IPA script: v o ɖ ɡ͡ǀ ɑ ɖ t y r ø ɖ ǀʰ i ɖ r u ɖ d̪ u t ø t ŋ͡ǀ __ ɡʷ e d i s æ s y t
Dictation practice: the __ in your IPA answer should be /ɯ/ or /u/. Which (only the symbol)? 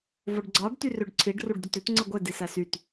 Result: ɯ